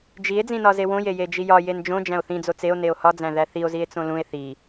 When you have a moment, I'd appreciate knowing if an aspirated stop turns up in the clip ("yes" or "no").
no